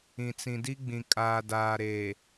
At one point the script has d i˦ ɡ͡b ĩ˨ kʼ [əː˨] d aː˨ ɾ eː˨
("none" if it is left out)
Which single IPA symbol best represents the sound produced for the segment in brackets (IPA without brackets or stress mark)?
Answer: aː˨